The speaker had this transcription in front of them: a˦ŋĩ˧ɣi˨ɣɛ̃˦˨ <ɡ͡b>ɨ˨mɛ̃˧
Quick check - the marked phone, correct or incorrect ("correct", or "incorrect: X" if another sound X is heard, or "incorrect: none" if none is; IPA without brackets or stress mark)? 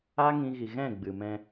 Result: correct